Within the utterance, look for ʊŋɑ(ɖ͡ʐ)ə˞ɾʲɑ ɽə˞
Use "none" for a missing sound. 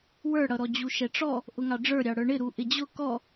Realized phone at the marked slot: ɖ͡ʐ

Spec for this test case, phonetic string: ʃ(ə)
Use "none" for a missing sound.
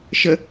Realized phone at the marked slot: ə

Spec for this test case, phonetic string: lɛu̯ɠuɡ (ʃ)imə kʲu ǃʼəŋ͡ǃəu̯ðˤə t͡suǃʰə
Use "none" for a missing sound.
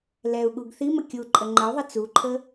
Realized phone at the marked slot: θ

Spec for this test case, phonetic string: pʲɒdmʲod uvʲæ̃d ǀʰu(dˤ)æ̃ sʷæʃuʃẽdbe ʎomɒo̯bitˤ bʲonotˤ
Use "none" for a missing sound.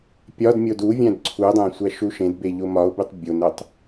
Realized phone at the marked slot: dˤ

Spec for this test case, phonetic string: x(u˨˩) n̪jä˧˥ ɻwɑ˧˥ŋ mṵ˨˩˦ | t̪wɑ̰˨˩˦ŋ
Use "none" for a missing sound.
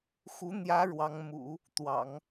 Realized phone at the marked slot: u˧˥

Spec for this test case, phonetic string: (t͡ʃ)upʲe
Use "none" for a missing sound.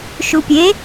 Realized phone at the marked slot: ʃ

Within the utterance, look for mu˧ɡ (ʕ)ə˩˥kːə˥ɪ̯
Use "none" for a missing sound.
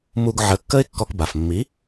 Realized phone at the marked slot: ʕ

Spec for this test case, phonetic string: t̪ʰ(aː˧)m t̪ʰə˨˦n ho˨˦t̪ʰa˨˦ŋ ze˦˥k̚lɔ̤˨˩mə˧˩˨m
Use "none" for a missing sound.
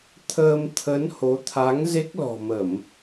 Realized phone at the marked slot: əː˧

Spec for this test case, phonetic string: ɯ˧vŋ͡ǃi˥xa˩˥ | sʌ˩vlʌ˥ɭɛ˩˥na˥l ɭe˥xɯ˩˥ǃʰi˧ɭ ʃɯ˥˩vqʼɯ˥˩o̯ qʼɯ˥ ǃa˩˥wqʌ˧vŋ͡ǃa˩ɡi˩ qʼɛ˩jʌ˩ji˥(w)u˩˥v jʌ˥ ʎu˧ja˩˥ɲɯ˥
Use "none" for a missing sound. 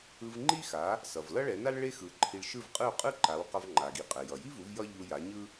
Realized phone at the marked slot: v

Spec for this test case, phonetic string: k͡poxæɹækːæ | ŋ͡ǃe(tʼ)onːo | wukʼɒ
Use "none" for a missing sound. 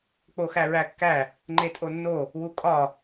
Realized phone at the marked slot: tʼ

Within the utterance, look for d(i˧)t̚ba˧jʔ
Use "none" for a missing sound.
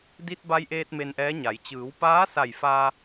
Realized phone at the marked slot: i˧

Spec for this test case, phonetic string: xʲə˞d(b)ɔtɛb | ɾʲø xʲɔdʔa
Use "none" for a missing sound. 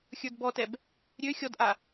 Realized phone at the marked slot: b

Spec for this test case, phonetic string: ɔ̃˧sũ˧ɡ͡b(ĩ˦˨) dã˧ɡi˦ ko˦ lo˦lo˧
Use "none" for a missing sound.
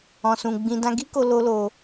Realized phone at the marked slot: ĩ˦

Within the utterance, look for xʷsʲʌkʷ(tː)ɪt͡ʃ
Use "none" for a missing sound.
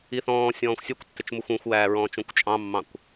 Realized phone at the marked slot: tː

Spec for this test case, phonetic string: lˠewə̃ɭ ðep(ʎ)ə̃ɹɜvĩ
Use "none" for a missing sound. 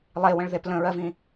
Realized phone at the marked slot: l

